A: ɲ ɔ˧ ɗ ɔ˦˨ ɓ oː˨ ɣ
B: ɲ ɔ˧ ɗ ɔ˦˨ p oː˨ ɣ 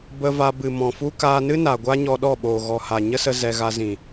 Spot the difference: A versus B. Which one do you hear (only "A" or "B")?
A